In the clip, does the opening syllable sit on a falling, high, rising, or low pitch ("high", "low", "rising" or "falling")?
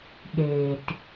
low